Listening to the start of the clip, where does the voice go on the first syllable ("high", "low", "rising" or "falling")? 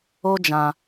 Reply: high